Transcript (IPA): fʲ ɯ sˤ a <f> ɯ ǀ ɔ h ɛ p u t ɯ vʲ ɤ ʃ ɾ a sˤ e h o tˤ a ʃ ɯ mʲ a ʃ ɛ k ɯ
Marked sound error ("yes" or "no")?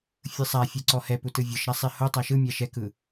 yes